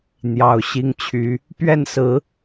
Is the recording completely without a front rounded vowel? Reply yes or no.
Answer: no